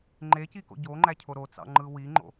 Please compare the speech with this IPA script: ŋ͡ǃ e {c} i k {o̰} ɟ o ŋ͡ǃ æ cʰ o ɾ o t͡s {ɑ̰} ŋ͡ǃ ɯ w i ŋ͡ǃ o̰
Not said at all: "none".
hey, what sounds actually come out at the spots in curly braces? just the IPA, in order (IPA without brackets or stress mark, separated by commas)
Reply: c, o̰, ɑ̰